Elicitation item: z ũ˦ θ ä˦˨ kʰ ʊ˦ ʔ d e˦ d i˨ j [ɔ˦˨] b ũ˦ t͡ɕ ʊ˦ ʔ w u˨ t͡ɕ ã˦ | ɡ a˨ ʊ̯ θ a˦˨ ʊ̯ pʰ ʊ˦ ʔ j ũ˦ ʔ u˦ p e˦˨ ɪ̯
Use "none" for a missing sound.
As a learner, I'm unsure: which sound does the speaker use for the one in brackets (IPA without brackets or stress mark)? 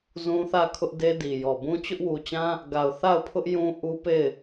ɔ˨